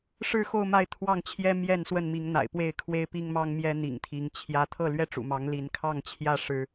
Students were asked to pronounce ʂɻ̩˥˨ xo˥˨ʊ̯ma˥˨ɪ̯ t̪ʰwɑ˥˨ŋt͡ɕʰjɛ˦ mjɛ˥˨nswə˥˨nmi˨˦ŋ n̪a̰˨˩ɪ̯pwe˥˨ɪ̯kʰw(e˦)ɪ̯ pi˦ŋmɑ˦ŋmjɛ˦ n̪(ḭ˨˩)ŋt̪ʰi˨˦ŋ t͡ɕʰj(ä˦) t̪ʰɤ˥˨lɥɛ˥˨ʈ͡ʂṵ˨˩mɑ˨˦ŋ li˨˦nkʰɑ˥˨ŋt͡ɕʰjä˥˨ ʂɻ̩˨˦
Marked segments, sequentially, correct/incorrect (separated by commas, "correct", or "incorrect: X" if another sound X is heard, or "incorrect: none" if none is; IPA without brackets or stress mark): correct, correct, correct